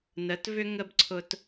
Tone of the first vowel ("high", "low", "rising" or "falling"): rising